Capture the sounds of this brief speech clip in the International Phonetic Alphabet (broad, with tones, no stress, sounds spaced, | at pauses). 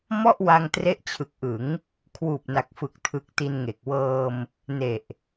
m ɔ˥˩ ʔ w a˧ ŋ t r e˦˥ ʔ t͡ɕʰ ɯ˨˩ k̚ ʔ ɯ˩˦ ŋ | kʰ w uː˨˩ p̚ n a˨˩ k̚ f ɯ˨˩ k̚ tʰ ɯ˨˩ k̚ t i˧ n ŋ e˨˩ k̚ w ɤː˧ m | n e˨˩ ʔ